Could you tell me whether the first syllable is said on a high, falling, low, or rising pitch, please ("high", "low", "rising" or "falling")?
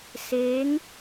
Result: rising